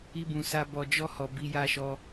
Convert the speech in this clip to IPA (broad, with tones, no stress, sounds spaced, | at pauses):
i˧ b ũ˨ s a˧ b ɔ˧ d͡ʒ ɔ˦ h ɔ˧ b i˦ j a˦ ʃ ɔ˦